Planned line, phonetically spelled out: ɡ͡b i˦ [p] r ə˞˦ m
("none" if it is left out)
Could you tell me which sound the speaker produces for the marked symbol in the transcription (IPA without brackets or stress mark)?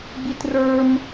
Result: t